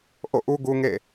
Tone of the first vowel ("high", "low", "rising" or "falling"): falling